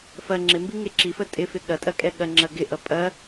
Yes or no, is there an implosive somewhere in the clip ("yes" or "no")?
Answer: yes